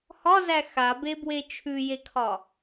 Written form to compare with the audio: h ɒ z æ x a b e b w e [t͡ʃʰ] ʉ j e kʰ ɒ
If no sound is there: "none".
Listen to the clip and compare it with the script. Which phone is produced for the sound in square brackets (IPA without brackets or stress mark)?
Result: t͡ʃʰ